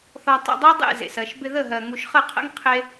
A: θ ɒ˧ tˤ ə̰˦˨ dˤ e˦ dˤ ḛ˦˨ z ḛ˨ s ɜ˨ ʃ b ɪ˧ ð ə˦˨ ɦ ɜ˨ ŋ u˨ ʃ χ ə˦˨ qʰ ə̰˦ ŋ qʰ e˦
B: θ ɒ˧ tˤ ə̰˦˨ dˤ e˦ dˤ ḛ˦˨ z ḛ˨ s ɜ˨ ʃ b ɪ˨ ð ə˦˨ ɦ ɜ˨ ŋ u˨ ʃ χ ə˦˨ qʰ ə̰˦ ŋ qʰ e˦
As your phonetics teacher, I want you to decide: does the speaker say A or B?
A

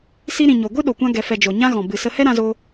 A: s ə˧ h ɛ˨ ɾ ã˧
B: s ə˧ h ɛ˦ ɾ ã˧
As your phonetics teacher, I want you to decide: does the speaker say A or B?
B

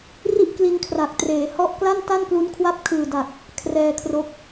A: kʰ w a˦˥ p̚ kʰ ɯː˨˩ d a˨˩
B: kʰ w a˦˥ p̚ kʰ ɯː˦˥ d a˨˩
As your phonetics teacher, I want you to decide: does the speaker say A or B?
A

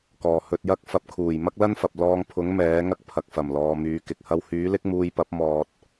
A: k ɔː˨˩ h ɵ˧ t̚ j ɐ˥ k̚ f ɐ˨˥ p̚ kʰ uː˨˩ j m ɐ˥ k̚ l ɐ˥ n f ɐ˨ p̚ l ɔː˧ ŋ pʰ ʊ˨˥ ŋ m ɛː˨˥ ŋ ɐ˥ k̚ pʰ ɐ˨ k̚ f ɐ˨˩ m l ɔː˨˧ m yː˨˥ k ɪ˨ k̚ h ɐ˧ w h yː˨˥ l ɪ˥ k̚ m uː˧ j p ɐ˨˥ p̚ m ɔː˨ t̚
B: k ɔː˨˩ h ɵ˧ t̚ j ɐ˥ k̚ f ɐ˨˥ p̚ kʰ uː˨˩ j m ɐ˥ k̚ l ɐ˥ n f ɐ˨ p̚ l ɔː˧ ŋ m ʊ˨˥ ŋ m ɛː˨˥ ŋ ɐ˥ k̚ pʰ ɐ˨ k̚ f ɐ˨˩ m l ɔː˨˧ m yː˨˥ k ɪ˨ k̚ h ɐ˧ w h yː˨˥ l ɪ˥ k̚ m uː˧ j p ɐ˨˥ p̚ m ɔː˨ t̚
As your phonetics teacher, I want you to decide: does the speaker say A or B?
A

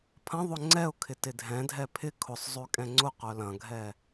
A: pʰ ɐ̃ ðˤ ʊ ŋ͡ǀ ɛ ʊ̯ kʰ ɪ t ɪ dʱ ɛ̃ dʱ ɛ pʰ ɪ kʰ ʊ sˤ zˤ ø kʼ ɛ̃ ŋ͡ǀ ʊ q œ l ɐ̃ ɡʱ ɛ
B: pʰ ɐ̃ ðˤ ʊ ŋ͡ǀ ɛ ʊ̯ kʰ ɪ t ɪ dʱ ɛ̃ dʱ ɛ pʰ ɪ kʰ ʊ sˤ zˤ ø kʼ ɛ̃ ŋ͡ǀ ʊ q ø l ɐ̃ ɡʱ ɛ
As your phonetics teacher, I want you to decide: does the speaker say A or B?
A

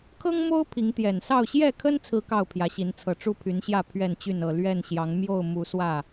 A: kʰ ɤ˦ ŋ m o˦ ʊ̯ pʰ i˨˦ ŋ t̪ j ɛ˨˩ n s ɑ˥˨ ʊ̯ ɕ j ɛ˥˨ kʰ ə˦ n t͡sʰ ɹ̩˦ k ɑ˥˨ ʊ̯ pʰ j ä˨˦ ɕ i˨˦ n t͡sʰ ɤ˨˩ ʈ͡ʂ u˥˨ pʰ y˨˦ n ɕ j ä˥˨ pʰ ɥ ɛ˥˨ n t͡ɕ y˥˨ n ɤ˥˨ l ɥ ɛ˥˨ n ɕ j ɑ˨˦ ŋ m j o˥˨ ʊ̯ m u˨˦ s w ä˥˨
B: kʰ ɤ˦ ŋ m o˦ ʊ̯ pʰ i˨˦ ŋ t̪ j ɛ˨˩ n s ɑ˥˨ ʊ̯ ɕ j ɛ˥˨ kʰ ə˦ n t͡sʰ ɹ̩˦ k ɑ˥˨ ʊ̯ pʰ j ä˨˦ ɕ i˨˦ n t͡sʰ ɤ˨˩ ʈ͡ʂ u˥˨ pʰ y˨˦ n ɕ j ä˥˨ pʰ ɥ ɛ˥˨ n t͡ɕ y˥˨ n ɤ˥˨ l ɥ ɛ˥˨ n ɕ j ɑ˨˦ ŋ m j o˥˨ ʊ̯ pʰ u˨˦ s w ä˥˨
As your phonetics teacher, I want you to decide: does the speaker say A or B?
A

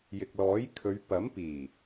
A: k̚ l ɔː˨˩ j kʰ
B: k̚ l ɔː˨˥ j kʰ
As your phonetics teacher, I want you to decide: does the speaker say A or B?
B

